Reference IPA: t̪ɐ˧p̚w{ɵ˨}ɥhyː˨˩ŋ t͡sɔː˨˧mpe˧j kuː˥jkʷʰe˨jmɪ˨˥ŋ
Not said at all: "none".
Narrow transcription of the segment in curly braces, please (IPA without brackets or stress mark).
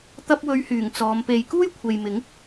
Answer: ɵ˨˧